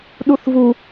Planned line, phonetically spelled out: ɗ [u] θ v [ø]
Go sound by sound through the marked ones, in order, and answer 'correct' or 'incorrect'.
correct, incorrect

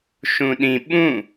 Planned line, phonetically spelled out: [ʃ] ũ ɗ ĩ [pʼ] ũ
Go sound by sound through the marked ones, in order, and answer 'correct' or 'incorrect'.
correct, incorrect

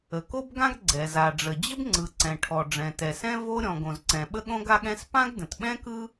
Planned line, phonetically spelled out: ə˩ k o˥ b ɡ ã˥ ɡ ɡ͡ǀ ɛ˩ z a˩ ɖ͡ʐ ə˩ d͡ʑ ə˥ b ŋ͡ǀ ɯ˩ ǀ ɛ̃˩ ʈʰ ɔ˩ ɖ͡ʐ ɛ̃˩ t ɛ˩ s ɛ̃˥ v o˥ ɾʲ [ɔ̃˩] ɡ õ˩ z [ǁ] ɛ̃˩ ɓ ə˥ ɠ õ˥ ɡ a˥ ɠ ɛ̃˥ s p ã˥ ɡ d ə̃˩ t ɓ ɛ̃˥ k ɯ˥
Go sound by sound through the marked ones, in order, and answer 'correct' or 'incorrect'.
correct, incorrect

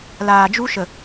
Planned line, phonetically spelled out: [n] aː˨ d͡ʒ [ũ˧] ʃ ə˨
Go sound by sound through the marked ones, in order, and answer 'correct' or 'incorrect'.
incorrect, incorrect

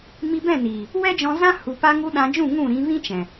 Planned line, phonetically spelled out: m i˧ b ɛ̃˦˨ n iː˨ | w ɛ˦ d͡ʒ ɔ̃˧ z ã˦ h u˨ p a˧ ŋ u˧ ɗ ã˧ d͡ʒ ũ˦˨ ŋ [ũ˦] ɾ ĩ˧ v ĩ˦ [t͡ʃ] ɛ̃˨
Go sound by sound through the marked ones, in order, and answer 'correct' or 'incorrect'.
incorrect, correct

